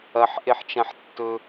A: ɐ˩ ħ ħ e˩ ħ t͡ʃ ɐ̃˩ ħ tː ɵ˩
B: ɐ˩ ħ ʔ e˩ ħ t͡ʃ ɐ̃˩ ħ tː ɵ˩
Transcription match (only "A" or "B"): B